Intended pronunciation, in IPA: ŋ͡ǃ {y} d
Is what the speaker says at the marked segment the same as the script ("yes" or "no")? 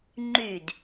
yes